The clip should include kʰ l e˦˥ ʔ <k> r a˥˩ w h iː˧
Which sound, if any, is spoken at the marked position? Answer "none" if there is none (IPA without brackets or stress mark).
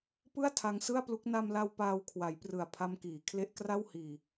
k